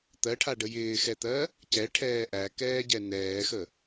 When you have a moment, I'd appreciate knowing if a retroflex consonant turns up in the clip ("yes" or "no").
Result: yes